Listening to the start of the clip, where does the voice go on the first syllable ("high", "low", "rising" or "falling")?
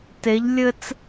rising